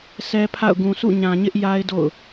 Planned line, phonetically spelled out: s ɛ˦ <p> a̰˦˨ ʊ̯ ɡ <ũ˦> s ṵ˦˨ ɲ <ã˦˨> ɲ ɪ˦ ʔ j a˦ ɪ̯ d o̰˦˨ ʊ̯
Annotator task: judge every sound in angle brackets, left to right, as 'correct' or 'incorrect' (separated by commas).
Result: incorrect, incorrect, incorrect